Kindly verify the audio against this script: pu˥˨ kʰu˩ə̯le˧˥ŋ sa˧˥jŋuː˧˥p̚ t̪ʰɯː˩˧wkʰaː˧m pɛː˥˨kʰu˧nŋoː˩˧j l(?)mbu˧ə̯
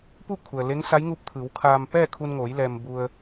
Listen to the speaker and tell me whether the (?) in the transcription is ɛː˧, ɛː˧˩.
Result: ɛː˧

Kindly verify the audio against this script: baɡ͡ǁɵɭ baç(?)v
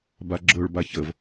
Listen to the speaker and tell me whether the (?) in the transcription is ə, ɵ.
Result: ə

